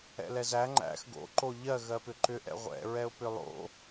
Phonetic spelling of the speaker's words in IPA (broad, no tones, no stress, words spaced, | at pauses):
ɛ̰lɛzæ ŋ͡ǃæ̰x ɡo̰ ǃoʎɜ ɣɜpʏǃʏ ʔɛ̰ʁʷɛ̰ ɹɛʊ̯pʏlˠo̰